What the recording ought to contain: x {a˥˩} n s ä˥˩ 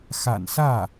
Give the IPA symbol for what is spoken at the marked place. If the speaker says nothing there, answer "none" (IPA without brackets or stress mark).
a̰˨˩